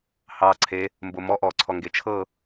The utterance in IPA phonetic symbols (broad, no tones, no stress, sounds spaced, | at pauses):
h ɑ ǀʰ e | m b o m ɔ ʔ ɔ ǀʰ ɔ ŋ ɡ e t͡ʃʰ ɤ